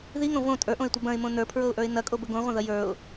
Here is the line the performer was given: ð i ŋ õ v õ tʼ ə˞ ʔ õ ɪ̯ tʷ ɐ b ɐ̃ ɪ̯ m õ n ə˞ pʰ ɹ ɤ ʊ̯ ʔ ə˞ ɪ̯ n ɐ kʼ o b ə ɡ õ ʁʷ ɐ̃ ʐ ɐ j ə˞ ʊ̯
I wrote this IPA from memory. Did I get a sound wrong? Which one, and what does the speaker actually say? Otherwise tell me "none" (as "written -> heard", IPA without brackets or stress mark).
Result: ʐ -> ð